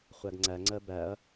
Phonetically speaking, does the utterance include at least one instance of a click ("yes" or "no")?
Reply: yes